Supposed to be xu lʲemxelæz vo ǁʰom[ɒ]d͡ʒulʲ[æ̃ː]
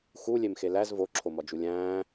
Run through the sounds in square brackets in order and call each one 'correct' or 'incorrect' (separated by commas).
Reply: correct, correct